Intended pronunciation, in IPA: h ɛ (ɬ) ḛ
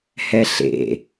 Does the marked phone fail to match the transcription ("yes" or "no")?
no